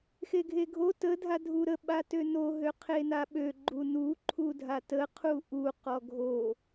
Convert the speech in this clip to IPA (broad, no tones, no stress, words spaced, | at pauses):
xeɡʱeɡʱo tə dʱadʱuɾə ɓatøno ɦøqʰenaɓø ɡ͡ǃunu ǃʰudʱatə qʰuʔu qɔɡʱo